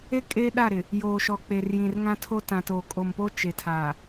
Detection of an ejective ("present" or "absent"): present